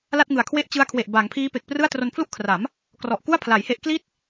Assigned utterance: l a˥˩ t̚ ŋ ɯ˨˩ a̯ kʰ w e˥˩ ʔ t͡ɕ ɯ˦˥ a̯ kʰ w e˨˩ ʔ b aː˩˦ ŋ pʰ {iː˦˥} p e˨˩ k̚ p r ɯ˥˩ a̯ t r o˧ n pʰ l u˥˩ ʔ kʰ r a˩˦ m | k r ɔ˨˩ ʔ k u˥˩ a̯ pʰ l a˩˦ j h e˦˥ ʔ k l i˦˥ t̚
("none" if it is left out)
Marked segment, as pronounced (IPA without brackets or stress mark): iː˦˥